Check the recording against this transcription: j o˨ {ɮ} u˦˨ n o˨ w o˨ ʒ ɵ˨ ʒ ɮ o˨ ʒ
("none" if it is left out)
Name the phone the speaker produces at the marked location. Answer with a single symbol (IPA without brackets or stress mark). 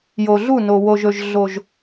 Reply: ɮ